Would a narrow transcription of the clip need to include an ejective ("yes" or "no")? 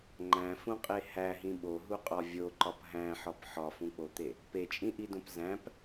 yes